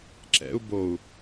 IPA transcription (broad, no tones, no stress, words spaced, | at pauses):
ǁɛ̰u̯ bou̯